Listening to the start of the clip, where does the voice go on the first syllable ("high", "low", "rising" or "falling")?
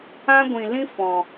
high